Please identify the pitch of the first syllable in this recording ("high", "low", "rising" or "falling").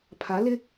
rising